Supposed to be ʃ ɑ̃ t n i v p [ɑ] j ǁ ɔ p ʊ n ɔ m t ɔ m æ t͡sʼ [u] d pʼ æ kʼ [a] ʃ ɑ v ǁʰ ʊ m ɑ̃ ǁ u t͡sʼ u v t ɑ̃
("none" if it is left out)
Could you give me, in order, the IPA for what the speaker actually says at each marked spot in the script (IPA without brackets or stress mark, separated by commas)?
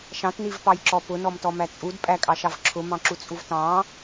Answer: ɑ, u, ɑ